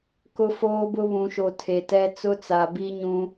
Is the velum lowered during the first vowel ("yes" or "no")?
no